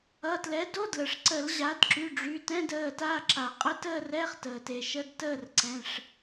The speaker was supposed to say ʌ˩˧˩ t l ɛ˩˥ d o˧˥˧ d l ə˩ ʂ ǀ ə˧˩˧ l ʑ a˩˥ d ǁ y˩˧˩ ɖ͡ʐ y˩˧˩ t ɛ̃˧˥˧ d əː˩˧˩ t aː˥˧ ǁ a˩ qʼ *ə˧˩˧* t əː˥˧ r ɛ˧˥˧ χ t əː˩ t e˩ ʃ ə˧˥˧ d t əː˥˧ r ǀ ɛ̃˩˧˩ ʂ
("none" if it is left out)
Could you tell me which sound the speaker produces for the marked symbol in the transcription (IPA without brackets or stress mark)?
ə˥˧